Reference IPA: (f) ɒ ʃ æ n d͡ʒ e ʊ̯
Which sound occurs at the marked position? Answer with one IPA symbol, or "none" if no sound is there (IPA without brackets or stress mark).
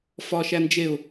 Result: f